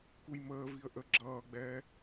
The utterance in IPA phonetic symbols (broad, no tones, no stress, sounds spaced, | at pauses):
k u j m əː v i ə̯ ʔ ə ɡ͡ǁ ʌː ɡ͡b ɛː